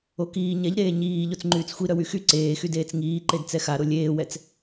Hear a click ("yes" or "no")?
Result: yes